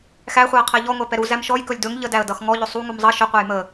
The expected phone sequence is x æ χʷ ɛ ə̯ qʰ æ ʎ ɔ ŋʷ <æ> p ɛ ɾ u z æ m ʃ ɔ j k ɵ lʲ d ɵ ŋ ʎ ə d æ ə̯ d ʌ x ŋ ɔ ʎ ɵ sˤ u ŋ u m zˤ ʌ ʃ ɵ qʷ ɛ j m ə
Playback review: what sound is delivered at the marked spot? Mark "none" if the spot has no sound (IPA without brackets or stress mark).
æ